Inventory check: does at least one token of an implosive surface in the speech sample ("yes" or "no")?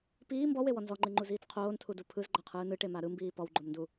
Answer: no